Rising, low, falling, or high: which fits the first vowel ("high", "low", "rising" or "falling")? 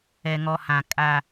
low